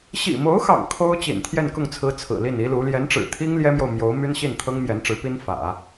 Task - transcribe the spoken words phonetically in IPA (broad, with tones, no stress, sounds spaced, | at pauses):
ɕ ḭ˨˩ m o˧˥ ʊ̯ x ɑ̰˨˩ ŋ kʰ o˥ ʊ̯ t͡ɕ ḭ˨˩ n t̪ʰ j ɛ˥˧ n k ʊ˥˩ ŋ t͡sʰ ɹ̩˧˥ t͡sʰ ɹ̩˨˩ l i˥˩ n i˥ l u˧˥ l j ɛ˧˥ n ʈ͡ʂ ɻ̩˨˩ t̪ʰ i˥ ŋ l j ɛ˥ m j o˨ ʊ̯ m j o˧˥ ʊ̯ m y˥ n ɕ i˥˩ n t̪ʰ ɤ˥ ŋ m j ɛ˧˥ n ʈ͡ʂ ɻ̩˧˥ p i˥ n f ä̰˨˩˦